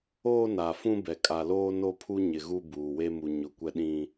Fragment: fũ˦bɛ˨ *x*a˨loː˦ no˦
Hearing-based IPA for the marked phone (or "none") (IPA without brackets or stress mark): kʼ